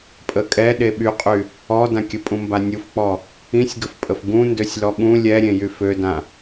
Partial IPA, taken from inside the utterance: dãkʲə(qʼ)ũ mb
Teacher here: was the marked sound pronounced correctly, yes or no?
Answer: no